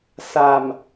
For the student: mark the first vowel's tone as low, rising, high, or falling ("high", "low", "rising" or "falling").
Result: low